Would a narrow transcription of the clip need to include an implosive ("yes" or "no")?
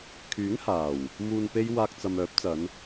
no